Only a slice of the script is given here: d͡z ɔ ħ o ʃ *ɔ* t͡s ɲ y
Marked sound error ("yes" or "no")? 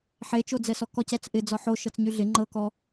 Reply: yes